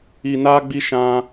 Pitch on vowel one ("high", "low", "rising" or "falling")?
low